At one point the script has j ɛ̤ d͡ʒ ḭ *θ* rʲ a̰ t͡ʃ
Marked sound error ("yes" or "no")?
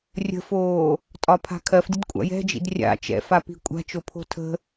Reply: yes